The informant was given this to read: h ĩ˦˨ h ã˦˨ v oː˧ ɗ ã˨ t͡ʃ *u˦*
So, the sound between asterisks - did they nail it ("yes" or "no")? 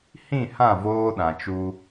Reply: no